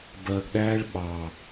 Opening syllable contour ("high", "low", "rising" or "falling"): low